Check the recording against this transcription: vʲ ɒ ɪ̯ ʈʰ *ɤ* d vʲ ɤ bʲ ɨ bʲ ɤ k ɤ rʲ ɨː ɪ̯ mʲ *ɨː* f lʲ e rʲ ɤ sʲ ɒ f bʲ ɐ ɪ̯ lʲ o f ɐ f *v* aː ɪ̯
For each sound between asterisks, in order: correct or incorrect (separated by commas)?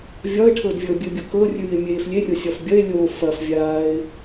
correct, incorrect, incorrect